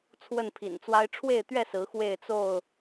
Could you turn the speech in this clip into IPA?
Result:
t͡sʰ w ə˥˨ n pʰ ḭ˨˩ n t͡s w a˦ ɪ̯ ʈ͡ʂʰ w e˥˨ ɪ̯ t̪ ɥ ɛ˥˨ s ɹ̩˨˦ x w e˥˨ ɪ̯ t͡s o˥˨ ʊ̯

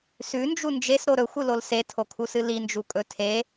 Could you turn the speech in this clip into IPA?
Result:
s ʉ n d͡ʒ u n d͡ʒ e s ɾ o ɾ ɵ xʷ ɨ l o l s e tʰ o kʰ u s ɨ l i n d͡ʒ u kʼ ɵ tʰ e

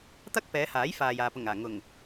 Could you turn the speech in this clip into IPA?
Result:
t̪ ɐ˥ k̚ p ɛː˨˧ h aː˨˥ j f aː˨ j aː˨ p ʊ˨˩ ŋ aː˨˩ ŋ ʊ˨˩ ŋ

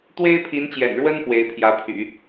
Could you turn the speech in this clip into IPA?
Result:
t̪ w e˥ ɪ̯ pʰ i˧˥ n t͡ɕ j ɛ̰˨˩ n ɻ w ə˥ n p w e˧˥ ɪ̯ pʰ j ä˧˥ pʰ y̰˨˩˦

